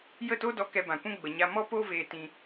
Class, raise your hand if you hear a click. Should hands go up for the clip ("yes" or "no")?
no